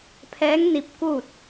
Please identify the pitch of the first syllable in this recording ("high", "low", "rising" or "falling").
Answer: rising